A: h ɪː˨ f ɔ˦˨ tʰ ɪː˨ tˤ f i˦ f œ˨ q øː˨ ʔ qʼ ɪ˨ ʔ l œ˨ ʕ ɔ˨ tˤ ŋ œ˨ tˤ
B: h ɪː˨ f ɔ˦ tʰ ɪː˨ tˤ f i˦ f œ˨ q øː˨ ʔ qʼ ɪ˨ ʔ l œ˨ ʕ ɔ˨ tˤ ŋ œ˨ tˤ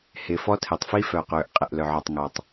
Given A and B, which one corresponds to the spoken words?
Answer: B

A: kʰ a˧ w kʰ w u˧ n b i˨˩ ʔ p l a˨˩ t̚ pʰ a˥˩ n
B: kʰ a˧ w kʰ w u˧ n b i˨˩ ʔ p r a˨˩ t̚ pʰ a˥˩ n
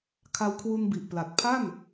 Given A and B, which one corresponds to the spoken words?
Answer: A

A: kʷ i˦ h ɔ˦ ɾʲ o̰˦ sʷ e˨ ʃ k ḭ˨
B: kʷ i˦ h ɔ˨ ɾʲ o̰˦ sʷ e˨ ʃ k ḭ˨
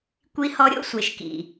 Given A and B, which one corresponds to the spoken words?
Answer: A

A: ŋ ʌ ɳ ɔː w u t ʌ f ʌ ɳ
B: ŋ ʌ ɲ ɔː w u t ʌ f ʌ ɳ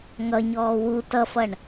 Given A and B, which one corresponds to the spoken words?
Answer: B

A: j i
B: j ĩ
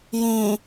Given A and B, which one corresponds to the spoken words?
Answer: B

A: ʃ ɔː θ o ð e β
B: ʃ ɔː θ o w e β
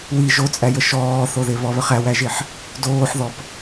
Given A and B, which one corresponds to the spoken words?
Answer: A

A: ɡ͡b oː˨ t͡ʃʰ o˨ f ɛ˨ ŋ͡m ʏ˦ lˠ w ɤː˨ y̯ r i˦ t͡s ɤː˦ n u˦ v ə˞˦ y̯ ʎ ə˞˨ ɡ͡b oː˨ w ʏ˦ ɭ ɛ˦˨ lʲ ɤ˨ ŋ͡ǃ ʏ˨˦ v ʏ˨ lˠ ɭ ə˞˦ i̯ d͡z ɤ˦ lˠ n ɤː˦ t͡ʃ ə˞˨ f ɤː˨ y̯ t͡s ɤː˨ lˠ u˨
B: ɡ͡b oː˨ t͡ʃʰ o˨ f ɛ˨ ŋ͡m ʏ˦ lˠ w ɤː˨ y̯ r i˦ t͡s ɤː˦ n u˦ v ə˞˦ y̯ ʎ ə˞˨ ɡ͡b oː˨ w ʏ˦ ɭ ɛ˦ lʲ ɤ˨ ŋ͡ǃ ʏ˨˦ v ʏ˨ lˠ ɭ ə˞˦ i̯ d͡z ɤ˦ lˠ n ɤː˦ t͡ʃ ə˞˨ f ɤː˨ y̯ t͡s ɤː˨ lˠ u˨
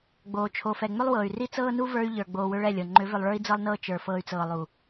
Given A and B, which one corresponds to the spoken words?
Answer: A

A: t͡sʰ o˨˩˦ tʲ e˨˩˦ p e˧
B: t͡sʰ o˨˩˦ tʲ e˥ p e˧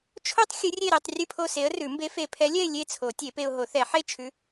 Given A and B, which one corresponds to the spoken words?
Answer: A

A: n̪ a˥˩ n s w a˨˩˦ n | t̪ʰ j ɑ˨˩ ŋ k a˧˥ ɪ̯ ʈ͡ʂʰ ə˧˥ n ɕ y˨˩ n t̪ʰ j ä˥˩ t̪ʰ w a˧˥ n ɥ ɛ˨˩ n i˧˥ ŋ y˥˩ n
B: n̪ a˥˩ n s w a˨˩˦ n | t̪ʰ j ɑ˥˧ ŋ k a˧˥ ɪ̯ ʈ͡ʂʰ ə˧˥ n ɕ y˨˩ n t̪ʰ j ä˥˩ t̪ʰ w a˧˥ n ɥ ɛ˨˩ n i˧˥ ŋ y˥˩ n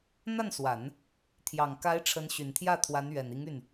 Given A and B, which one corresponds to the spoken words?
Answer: A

